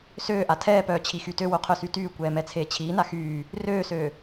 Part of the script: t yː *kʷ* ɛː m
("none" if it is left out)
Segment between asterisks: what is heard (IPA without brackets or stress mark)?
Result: kʷ